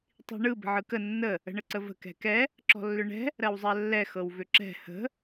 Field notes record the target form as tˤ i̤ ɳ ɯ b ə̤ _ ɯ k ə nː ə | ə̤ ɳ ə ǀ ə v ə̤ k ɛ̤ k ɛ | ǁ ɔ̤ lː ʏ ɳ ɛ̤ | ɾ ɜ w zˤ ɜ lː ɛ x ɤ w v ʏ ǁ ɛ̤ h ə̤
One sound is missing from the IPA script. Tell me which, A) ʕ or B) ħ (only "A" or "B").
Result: A